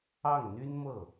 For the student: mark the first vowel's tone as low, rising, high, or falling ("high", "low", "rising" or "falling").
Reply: falling